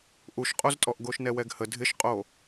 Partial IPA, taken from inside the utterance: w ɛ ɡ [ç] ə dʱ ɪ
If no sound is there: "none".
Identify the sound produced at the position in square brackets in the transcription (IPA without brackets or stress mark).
h